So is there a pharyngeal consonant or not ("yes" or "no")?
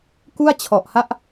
no